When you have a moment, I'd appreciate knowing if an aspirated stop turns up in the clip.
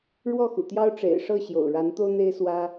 no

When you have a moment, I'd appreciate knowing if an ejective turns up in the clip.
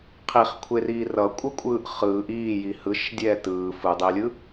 yes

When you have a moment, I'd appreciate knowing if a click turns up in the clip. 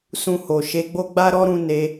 no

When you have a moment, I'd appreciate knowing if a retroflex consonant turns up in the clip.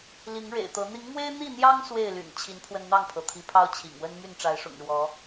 yes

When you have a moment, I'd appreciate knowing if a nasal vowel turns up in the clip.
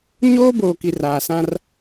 yes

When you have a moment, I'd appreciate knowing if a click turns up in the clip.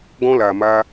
no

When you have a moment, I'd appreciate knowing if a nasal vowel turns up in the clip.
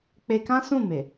yes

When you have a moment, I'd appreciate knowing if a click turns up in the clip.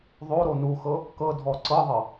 yes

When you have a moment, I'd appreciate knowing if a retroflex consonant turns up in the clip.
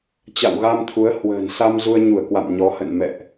no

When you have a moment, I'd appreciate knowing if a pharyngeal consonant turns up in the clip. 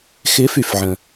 yes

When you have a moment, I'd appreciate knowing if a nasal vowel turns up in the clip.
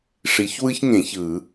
yes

